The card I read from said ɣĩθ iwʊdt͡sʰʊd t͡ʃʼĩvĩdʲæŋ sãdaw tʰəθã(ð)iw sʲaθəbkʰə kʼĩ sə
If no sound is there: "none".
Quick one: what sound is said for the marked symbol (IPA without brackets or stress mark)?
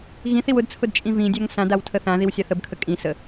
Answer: ð